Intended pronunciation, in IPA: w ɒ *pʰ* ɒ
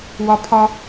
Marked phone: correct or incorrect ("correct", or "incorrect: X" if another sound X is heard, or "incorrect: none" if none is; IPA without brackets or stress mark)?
correct